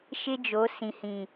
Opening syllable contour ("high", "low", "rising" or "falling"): high